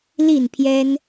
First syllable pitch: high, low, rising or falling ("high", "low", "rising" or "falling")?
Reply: falling